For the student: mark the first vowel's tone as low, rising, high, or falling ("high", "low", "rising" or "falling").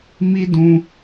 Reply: high